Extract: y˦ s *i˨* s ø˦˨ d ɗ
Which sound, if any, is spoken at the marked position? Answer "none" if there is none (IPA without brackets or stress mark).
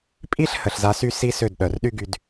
i˦